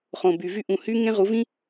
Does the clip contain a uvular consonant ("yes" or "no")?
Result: yes